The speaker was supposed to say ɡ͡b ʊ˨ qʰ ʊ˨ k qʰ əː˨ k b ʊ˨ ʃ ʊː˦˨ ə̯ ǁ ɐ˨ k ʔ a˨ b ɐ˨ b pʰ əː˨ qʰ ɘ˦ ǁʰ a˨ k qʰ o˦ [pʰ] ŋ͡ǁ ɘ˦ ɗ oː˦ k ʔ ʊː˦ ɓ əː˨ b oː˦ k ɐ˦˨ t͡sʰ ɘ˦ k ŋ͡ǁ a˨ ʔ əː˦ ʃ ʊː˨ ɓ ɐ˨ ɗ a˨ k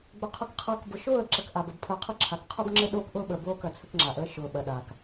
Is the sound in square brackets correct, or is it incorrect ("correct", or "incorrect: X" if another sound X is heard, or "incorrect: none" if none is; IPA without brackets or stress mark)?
incorrect: b